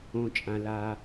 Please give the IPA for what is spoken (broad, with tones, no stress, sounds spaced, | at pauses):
õ˩ t͡ʃʼ ã˩ l a˩